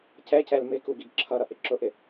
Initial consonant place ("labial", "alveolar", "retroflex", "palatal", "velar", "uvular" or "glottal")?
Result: palatal